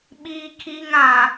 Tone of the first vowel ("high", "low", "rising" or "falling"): high